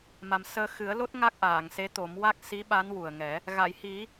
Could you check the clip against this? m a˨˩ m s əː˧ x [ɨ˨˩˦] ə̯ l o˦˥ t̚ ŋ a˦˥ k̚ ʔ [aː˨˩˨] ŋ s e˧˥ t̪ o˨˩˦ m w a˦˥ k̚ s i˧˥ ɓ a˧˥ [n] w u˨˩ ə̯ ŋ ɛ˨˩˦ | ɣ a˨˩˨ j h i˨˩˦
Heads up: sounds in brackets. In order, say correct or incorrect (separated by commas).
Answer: correct, correct, correct